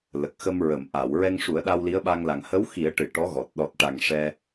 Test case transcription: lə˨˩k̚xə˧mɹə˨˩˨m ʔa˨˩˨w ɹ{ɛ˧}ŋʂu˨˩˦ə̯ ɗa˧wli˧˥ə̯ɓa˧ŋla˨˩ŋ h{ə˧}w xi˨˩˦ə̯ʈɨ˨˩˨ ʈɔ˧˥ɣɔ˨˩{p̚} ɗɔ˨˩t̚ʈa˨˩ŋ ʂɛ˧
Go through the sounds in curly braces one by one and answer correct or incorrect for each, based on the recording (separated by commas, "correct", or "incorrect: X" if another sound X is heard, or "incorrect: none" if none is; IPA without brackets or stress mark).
correct, incorrect: ə˧˥, incorrect: t̚